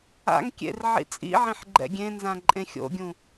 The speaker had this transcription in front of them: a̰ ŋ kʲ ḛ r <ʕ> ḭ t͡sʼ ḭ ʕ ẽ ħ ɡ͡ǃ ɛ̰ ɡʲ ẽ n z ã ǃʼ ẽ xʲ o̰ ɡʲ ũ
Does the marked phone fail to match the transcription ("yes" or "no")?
no